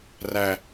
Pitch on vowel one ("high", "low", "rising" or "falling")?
high